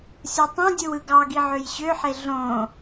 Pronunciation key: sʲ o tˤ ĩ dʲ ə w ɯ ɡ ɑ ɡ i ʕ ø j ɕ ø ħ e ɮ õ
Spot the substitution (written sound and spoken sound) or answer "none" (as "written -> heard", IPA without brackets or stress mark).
ə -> ɯ